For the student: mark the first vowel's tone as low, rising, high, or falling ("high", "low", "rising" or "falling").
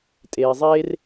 low